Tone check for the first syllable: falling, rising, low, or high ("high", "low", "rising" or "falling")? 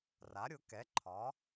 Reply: rising